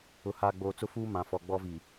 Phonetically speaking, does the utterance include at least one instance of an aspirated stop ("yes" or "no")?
no